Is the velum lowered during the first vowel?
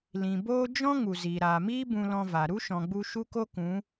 yes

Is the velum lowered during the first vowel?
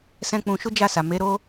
yes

